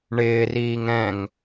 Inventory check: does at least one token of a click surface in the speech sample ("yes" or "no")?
no